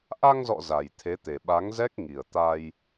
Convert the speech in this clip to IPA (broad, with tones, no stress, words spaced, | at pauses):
ʔa˧ŋzɔ̰˧˨ za˨˩jt̪ʰe˨˦t̪e˨˩ ɓa˨˦ŋzɛ˦˥k̚ŋi˨˩ə̯t̪a˧j